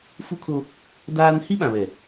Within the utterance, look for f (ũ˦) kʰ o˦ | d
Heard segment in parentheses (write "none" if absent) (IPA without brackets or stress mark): u˦